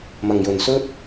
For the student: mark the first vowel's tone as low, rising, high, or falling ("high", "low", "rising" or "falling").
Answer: low